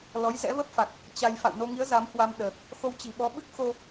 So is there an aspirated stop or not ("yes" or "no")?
no